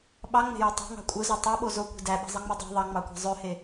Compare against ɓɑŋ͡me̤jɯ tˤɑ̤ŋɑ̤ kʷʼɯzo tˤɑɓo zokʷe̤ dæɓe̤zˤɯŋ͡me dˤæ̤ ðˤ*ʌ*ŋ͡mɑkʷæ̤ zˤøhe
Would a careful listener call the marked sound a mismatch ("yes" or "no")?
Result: yes